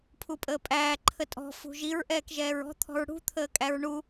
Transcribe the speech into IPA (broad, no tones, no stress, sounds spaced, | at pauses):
pʰ u pʼ əː pʼ æː ǃʰ ə tʼ ɔ̤ f ṳ ʒ i ɹ ʔ ɛː k ʒ ɛː ɹ ɔ̤ t̪ʰ ɔ̤ ɹ ɽ ṳ t̪ʰ əː kʼ æ ɹ ɳ u